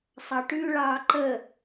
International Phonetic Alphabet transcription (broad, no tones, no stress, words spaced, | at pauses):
sˤɑʈʉ ɭɑːǃə